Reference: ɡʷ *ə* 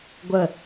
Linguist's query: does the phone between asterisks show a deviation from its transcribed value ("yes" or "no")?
no